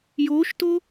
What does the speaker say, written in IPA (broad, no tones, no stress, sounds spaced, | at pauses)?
j o ʃ t o